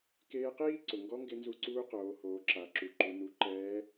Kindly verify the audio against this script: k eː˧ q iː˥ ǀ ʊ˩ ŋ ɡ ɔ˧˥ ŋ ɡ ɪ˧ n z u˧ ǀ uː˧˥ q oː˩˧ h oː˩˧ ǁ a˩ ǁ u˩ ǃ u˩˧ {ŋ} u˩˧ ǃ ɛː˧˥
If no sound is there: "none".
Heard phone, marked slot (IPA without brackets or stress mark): n